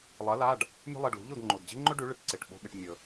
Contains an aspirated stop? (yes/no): no